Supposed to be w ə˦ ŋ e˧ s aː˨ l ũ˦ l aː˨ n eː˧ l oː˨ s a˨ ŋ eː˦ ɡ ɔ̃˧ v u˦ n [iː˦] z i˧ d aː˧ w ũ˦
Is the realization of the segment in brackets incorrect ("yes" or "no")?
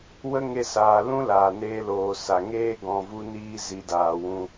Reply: no